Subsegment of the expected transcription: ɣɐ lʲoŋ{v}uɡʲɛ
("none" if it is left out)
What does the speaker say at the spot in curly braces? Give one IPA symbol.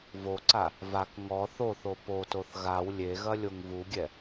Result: v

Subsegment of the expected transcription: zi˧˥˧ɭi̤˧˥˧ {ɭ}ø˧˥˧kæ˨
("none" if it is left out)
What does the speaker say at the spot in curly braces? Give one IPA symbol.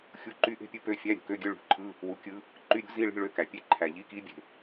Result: ɭ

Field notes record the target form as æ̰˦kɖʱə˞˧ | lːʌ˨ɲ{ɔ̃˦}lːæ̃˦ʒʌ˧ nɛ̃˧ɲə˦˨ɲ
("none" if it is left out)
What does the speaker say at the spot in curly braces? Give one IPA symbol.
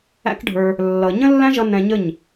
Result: ə̃˦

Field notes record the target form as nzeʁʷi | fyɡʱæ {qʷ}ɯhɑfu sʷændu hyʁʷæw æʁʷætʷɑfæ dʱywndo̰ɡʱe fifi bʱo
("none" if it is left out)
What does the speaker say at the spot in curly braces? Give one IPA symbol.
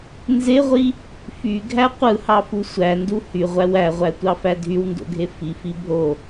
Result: qʷ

